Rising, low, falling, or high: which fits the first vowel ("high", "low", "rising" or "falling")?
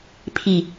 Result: low